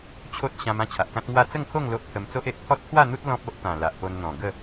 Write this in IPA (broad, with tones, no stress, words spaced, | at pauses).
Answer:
t͡ɕʰo˦t̚ ɕã˧m ã˥˧t͡ɕʰa˨ʔkã˦t̚ŋwa˥˧ t͡sə˥˧ŋkʰo˥˧ŋ lo˦ʔpʰə˧m t͡so˦ʔe˨ʔ pʰɔ˦t̚t̪ʰwa˥˧n̪u˦t̚ lɔ̃˦p̚o˦ʔt̪ã˨˩ la˨ʔpo˧nn̪ɔ̃˨˩ ɡə˥˧